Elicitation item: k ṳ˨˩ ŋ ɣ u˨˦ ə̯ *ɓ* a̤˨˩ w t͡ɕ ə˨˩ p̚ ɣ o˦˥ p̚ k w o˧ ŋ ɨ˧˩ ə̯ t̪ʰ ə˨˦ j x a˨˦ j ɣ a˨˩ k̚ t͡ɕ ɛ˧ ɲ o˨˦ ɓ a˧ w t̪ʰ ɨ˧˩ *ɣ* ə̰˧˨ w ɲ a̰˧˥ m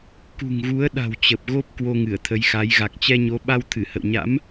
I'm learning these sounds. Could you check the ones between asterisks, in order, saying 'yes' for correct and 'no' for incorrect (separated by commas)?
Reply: no, no